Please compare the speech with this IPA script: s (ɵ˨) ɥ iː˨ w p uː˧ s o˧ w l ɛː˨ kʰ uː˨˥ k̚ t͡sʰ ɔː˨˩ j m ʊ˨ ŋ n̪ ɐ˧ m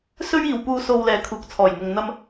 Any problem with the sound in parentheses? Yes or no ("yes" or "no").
yes